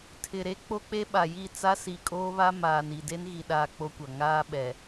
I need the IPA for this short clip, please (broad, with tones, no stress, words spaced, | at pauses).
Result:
tʰɪ˨ɾe˦ k͡po˦k͡pe˦ɓa˨ji˦˨ t͡sa˦si˨kʼoː˦βa˦ maː˨ni˨ de˦nɣi˨ɗaː˨ k͡po˦kʷa˨ ŋaː˦ɓɛ˨